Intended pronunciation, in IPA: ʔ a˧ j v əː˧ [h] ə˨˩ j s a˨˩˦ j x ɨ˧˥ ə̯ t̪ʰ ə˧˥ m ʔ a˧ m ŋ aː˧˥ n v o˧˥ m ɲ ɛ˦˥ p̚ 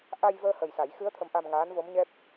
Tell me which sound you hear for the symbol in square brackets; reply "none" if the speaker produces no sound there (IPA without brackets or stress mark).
h